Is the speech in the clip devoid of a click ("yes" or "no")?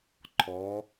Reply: no